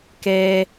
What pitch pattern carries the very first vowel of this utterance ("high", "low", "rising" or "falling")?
low